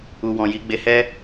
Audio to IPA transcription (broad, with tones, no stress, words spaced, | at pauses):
u˨wɔ̃˨ ji˧ɡ͡be˧hɛ˦